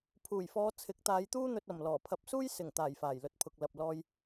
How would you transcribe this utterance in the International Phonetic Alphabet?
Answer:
pʰ uː˨˩ j f ɔː˨˧ t͡sʰ ɪ˨˥ k̚ t̪ aː˨˧ j t̪ uː˥ n̪ ɵ˧ t̚ ɐ˨˩ m l ɔː˨˩ pʰ ɐ˨˥ p̚ s uː˥ j s ɪ˨˩ ŋ t̪ aː˨˩ j f aː˨˩ j l ɵ˨ t̚ pʰ ʊ˨ k̚ l ɐ˨ p̚ l ɔː˧ j

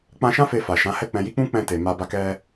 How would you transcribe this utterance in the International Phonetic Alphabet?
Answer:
k͡p ã˧ ʃ ã˦ f e˧ f a˨ ʃ ã˨˦ h ɛ˦˨ k͡p ɛ̃˧ j i˦ k͡p ũ˦ k͡p ɛ̃˧ t e˨ m a˧ b a˧ k ɛ˧

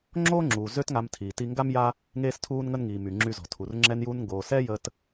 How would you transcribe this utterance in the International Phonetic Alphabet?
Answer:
ŋ͡ǁ oː˥ ŋ͡ǁ uː˩ z ø˥ t ŋ a˧ m tʰ iː˩ t i˧ ŋ ɡ a˥ m j a˥ | ŋ eː˥ s tʰ uː˥ n ŋ ə˥ n ŋ iː˩ m y˩ ŋ͡ǁ y˧ z ɔ̤˩ tʰ u˩ r ŋ͡ǁ ɛ˧ n j uː˧ n ŋ ɡ oː˩ s ɛ˥ j ə˧ t

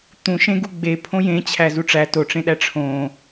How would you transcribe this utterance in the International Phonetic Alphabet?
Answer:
t̪ ũ ʃ ẽ ɡ u ɡ͡b e pʰ õ j ẽ t͡ɕʰ æ z u ʈ͡ʂ æ t o ʈ͡ʂ ẽ ɗ æ ʈ͡ʂʰ õ

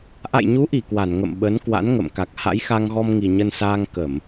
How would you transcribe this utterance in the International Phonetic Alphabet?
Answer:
ʔ a̰˧˨ j ɲ u˨˦ ʔ i˧˩ k w a˧˩ n ŋ ə̰˧˨ m ɓ ə˨˦ n k w a̰˧˥ n ŋ ə̰˧˨ m k a˨˩ k̚ h a̰˧˥ j x a˧ ŋ ɣ ɔ˧ m ŋ i˨˩ ɲ ə˧ n s aː˧ ŋ k ə˧˩˨ m

